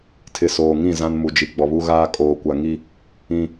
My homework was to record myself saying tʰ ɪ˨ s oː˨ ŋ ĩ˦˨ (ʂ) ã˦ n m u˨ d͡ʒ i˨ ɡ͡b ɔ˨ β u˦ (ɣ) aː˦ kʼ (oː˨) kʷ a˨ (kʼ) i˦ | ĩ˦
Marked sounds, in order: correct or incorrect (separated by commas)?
incorrect, correct, correct, incorrect